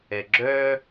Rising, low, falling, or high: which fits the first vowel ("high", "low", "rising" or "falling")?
low